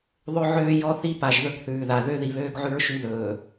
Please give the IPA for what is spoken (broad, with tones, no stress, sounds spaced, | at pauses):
ðˤ ɵ˦ ʕ øː˦ j ɔ˦ θ i˦ p a˨ ʒ ð ɵ˦ ɡ θ ʉː˨ ð a˨ ð ø˦ ð i˨ β øː˦ ɡ ʕ ʉ˦ ɹ ʃ y˦ ð ɵː˨